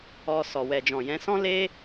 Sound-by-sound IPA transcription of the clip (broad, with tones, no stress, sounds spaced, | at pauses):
ɔ˧ s ɔ˨ w ɛ˨ d͡ʒ ɔ̃˨ j ɛ̃˨˦ s ɔ̃˦ l e˦